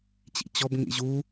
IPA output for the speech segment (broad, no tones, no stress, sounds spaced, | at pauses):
t͡ɕ ḭ t͡ɕ ɔ b ŋ ḭ ʑ u